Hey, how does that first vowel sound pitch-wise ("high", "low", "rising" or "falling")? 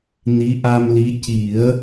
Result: rising